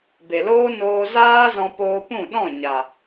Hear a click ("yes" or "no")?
no